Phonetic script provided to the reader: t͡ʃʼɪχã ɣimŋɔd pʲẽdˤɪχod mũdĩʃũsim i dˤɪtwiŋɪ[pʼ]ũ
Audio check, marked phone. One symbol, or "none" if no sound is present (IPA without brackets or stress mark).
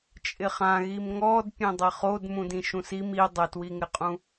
qʼ